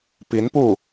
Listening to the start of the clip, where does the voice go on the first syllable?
rising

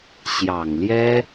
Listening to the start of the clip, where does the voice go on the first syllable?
low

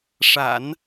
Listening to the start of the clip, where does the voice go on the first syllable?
low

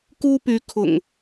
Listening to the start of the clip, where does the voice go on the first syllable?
high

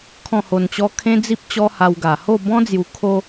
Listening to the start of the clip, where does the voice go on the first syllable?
falling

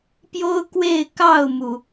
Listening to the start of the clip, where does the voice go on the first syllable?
high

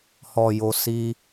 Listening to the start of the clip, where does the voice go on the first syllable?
low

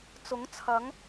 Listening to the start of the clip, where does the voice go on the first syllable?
rising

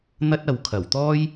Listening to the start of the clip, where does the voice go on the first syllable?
high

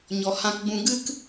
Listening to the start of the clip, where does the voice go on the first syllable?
low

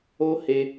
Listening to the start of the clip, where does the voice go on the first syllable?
high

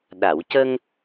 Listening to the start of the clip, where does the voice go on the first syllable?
low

